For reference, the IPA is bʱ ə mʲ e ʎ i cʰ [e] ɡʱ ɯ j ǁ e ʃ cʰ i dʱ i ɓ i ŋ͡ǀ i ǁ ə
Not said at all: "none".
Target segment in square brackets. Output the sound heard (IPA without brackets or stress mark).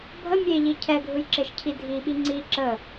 ɛ